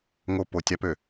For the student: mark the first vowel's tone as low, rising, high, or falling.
high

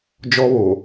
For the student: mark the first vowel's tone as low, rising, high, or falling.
high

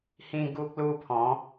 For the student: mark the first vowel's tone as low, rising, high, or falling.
high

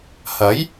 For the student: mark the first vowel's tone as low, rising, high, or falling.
rising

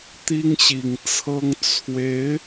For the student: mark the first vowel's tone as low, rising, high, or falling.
high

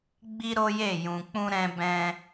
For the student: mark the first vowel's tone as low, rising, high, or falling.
high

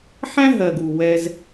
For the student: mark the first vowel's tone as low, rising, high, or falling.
high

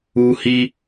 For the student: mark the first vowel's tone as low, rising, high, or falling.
high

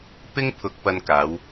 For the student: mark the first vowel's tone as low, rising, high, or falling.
high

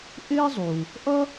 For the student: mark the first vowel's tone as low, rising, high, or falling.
high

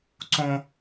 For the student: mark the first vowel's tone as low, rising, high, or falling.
high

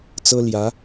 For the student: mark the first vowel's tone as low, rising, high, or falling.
high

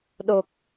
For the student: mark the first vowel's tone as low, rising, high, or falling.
low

